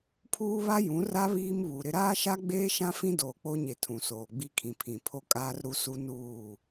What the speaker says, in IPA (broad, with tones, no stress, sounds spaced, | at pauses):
pʰ uː˦ β a˦ j ũ˨˦ r a˦ β iː˦ m β u˨ ɾ ɪ˦ ɾ aː˦ ʃ a˦ ɡ͡b eː˦ ʃ ã˦ f ĩ˦ d oː˨ k͡p o˦ ɲ e˨ tʰ ũ˨ s oː˨ ɡ͡b i˦ kʰ ĩ˨ pʰ ĩ˨ pʰ o˦ kʼ aː˦ r ɾ u˦ s u˦ n uː˦˨